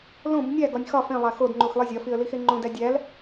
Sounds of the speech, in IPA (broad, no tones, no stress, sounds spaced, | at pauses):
l õ b nʲ æ ɡ ɒ nʲ x ɒ f ẽ lˠ æ x o d ŋ͡ǃ u x lˠ i zʲ ɒ f i ə̯ l i x e ŋ͡ǃ õ d æ dʲ æ l